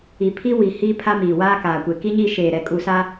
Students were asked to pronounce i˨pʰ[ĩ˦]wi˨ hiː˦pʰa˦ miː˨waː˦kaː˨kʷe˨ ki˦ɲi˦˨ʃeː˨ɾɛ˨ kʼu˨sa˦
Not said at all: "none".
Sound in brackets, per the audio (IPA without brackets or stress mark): i˦